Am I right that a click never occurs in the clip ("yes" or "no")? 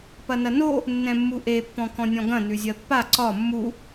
no